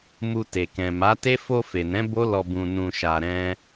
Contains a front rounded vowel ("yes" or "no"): no